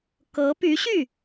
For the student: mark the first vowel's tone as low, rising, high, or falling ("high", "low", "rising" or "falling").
rising